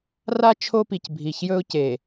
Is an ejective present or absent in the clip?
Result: absent